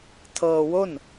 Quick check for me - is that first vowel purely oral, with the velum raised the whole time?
yes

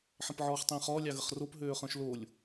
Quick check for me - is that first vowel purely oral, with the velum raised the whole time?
no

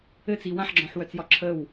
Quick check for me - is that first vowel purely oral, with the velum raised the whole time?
yes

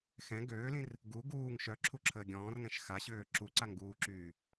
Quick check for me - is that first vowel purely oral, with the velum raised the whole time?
no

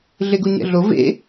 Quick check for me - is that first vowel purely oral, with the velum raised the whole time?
yes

